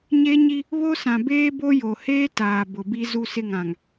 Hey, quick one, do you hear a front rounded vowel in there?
no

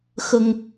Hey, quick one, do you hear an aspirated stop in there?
no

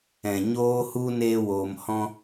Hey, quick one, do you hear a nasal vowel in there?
yes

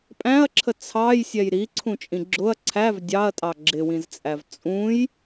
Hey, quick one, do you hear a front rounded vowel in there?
no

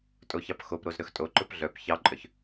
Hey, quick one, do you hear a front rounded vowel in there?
yes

